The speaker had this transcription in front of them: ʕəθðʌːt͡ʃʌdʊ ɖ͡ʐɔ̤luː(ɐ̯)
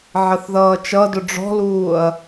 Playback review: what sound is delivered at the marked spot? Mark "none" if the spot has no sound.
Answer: ɐ̯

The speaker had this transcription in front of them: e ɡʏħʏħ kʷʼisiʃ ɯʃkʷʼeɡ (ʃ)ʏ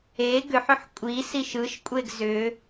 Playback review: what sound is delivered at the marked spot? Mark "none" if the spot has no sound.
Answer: z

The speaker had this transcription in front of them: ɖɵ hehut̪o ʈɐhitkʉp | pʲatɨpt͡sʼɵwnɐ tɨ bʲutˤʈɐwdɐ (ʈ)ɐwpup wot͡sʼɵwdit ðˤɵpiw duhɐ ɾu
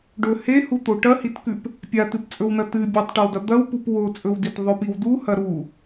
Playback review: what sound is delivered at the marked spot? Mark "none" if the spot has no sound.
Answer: d̪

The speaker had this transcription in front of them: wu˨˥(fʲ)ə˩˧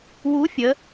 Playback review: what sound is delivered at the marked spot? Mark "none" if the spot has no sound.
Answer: fʲ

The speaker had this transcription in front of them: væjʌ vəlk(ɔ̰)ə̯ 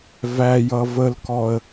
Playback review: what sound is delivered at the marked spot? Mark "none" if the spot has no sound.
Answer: ɔ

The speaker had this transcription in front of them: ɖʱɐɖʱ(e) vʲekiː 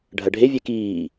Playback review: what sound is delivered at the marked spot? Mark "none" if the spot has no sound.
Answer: e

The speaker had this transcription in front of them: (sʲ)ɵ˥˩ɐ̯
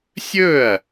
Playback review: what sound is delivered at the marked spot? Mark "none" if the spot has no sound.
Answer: sʲ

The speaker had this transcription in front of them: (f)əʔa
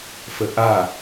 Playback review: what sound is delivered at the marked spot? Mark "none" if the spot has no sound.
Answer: f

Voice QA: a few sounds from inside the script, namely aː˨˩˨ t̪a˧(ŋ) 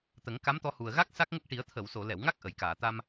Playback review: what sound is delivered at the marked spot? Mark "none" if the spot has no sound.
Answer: m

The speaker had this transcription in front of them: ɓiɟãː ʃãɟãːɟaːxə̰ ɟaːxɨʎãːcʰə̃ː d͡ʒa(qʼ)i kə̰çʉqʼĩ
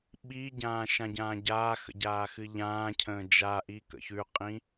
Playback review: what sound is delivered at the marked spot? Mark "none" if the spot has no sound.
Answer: ʔ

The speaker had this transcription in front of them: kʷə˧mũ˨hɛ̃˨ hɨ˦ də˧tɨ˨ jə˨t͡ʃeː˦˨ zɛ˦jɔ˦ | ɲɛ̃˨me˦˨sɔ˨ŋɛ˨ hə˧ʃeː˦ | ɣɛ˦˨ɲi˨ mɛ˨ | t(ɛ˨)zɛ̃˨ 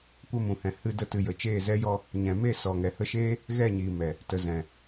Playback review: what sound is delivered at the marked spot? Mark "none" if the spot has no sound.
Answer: ə˨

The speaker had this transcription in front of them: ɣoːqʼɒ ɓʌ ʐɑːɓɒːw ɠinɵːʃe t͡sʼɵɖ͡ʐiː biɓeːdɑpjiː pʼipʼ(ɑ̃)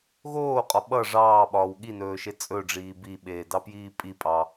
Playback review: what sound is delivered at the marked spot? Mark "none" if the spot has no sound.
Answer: ɑ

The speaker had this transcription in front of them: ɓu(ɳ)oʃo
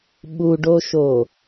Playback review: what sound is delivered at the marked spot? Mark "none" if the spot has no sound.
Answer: ɖ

